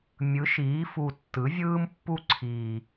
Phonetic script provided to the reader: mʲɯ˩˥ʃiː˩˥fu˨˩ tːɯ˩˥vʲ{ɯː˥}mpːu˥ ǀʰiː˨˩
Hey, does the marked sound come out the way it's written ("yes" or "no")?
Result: yes